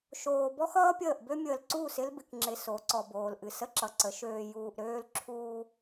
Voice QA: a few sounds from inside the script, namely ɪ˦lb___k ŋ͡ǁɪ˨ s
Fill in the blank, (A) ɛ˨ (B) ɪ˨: B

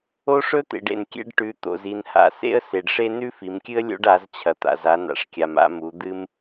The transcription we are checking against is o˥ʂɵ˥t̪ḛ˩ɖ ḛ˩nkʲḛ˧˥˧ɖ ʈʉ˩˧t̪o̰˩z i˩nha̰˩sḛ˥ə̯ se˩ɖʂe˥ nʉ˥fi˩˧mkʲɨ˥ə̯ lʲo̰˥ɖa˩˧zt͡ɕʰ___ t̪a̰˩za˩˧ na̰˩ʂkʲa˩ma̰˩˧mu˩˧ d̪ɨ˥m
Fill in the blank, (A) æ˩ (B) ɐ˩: B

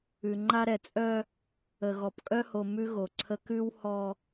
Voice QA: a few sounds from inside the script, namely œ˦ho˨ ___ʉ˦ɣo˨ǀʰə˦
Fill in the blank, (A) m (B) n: A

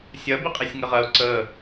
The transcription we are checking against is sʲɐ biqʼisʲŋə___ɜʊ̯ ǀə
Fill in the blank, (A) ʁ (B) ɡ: A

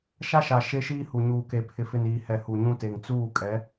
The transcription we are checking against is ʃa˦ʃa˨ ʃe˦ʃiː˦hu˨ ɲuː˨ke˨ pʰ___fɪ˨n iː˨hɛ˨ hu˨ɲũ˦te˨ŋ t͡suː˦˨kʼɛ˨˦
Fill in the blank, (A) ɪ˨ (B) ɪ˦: A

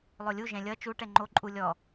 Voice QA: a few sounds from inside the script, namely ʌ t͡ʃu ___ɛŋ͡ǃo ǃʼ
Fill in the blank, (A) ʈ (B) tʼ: A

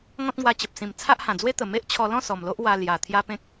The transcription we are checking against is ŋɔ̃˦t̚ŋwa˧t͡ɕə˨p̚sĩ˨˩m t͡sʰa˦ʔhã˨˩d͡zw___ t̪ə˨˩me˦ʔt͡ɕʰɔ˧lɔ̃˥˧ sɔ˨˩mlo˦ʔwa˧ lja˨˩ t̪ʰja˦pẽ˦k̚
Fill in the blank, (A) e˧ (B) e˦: B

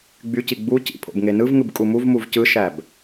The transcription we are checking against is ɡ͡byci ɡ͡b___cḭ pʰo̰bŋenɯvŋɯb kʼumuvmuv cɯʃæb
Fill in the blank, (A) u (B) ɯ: A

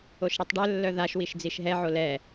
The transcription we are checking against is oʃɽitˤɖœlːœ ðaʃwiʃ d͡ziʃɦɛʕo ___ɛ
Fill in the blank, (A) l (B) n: A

